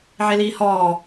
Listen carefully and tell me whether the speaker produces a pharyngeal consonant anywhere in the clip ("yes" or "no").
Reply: yes